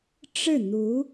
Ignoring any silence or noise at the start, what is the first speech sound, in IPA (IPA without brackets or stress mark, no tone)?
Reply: ʈ͡ʂ